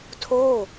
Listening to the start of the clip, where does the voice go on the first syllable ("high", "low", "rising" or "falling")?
falling